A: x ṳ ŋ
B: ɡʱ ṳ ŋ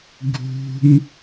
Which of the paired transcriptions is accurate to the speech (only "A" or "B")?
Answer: B